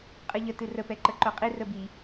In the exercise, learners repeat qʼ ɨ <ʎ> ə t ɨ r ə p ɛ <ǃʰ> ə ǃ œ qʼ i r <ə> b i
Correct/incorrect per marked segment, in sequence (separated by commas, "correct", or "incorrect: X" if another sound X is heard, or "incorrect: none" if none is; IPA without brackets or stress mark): correct, incorrect: ǃ, correct